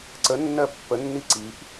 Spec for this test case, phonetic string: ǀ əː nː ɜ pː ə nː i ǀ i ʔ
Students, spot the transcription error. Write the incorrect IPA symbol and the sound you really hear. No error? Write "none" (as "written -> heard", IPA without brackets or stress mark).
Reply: əː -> ə